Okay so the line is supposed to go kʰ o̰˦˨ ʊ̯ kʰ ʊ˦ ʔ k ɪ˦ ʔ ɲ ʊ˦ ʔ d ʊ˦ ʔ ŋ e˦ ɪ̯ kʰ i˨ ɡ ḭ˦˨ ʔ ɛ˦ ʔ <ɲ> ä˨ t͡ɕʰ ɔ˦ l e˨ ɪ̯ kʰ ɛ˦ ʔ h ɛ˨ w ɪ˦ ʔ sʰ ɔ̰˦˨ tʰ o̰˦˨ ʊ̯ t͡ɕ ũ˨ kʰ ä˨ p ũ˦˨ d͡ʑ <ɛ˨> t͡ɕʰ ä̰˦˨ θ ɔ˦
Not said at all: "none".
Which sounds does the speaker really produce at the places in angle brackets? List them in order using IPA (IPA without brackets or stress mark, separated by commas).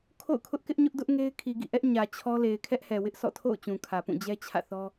ɲ, ɛ˦